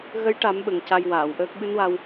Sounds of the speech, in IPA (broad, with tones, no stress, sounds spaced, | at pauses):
ɣ ə˧˥ j ʈ a˨˩˦ m ɓ ə˨˩ ŋ c a˧ j w aː˨˩˨ w ʔ əː˦˥ k̚ ɓ ɨ˧˥ n w a˧ w